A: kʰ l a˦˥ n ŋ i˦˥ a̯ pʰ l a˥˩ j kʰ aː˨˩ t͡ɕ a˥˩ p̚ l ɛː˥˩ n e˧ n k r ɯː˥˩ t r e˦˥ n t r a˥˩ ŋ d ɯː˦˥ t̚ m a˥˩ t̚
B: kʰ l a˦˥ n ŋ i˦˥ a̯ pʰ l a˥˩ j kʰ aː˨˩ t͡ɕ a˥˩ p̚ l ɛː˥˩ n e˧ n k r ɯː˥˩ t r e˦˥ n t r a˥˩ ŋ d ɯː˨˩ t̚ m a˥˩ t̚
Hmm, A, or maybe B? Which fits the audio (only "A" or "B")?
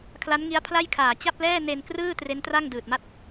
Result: B